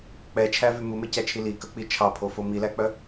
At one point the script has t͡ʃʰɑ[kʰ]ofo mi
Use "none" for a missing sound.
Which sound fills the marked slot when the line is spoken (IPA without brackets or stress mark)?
pʰ